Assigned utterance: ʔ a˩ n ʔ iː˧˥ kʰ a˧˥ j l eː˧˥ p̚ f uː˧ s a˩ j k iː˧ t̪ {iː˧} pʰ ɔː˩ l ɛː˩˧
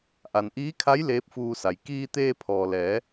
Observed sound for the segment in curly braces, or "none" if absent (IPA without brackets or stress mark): eː˧